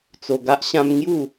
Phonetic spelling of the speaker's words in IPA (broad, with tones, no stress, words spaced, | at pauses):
t͡so˧ɡa˦ʔɕã˦m ŋju˥˧